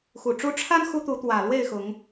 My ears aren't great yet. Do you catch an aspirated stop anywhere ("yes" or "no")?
yes